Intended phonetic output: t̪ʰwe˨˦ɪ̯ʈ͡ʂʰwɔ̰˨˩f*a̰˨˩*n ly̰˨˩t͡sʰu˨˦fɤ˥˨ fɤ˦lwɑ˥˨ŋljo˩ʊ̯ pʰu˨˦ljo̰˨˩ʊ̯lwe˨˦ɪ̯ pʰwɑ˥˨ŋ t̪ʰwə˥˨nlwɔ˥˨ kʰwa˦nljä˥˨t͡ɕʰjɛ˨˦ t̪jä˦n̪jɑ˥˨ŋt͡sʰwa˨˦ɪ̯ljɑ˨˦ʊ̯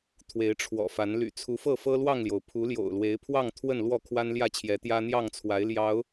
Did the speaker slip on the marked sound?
yes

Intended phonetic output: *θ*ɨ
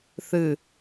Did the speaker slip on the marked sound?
no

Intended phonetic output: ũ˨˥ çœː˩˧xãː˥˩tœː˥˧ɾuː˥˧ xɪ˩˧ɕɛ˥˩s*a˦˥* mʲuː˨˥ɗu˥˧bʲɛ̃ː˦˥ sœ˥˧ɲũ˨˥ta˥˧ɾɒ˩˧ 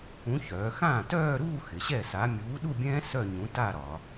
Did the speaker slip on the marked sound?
yes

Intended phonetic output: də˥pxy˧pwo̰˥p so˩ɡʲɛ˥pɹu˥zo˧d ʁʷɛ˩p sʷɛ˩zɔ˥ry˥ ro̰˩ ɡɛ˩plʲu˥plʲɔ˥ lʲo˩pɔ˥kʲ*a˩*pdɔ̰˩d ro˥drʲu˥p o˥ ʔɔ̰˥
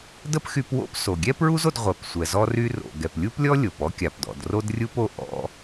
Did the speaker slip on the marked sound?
no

